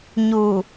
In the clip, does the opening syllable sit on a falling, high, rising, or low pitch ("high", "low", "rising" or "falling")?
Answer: low